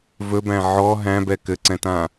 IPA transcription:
v ɵ b æ̃ ʕ ɔ ɦ æ̃ b ɛ k ɘ ǀ ɛ̃ t ã

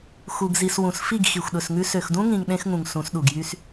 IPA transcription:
x u˨ ɡ z i˨ s w ũ˨ s f i˦˨ ɡ x i˨ xʷ ɗ ɵ˨ s ŋ ʉ˦ s ø˨ x d ũ˦ ŋ ĩ˨ ŋ ɗ ẽ˦ x ŋ ũ˨ ŋ s ũ˨˦ s ɗ u˨ ɡ j y˦ s

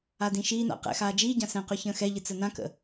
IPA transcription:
a d ĩ ʃ iː n a̰ q ɛ̰ x aː d͡ʒ iː ɟ ã s ɛ̃ q ʉ ç ə̃ː x ɛ ʎ ɨ t͡s ə n ã k ə̰

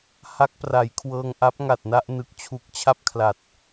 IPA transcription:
h a˦˥ k̚ p r a˩˦ j kʰ w ɤː˧ ŋ ʔ a˦˥ p̚ ŋ a˨˩ t̚ n a˥˩ ʔ n ɯ˨˩ k̚ t͡ɕʰ u˨˩ k̚ t͡ɕʰ a˥˩ p̚ kʰ l a˨˩ t̚

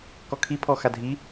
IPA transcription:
k ɔ kʰ i pʰ ɔ x a dʱ i

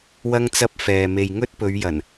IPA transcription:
w ɐ˥ ŋ t͡s ɐ˥ p̚ f ɛː˨ m e˨ j ŋ ɵ˥ t̚ p ɵ˨˧ ɥ j ɐ˨˩ n

